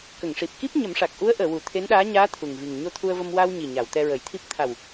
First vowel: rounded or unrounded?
unrounded